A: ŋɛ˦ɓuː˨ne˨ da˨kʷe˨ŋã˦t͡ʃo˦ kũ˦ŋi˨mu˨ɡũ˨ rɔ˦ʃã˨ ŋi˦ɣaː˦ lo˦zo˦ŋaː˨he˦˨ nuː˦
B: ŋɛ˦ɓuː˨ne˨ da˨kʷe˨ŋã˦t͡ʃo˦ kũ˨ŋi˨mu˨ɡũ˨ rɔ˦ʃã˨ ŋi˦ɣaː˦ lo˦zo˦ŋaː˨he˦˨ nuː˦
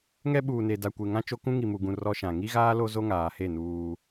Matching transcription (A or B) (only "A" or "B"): A